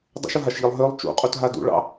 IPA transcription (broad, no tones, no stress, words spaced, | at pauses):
dˤṵʃʊɦaʃʎilˠ ɦølˠ t͡ʃṵqʼutɦa dṵɭɑ̰